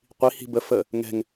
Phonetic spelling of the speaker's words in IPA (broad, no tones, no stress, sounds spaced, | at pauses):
qʷ i h i̤ b ə f ə | ŋ ɛ̤ ŋ